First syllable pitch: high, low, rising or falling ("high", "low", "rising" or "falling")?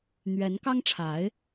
rising